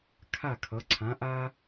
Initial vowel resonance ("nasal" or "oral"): oral